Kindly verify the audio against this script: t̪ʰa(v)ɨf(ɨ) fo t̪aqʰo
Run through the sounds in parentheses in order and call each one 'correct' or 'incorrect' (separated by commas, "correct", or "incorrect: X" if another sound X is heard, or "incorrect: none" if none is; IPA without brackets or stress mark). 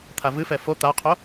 correct, incorrect: ɛ